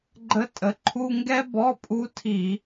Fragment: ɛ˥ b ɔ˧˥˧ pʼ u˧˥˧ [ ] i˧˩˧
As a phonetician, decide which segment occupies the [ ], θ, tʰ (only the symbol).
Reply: tʰ